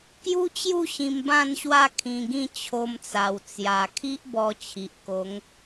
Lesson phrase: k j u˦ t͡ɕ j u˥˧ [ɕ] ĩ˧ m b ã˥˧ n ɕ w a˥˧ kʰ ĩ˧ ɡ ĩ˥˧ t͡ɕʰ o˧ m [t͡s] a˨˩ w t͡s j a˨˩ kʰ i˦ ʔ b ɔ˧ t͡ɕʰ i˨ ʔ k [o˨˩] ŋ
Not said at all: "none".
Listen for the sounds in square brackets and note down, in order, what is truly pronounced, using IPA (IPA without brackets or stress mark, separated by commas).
ɕ, t͡s, o˨˦